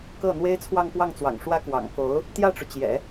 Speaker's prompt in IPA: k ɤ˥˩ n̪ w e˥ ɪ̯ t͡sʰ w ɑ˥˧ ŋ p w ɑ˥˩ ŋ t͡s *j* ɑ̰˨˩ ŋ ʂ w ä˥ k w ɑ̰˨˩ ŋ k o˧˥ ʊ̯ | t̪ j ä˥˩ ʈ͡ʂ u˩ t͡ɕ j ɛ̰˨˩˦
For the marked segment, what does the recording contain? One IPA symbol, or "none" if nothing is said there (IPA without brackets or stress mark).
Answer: w